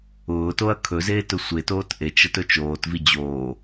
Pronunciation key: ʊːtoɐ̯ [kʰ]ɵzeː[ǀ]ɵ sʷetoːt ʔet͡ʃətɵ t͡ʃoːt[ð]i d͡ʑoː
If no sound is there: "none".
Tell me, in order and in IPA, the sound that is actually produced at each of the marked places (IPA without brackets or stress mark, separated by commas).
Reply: kʰ, t, v